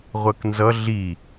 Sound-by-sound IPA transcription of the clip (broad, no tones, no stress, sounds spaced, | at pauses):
ʁʷ ɜ k n z ʌ ɮ i